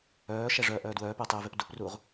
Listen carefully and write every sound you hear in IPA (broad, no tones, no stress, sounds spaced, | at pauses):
œː ʃ ɛ ʐ œː ʔ œː d w œː p ɛ tˤ eː v e p d u p r uː ʁ